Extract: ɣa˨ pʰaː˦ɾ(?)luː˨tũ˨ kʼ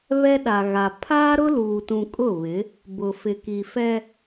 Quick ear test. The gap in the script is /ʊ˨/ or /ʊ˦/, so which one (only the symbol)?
ʊ˦